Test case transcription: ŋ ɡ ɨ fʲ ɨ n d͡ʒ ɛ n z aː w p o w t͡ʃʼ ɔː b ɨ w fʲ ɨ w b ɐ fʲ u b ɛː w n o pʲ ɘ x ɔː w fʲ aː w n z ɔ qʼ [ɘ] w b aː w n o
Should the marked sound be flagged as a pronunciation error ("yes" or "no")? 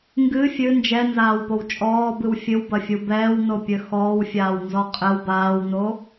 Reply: no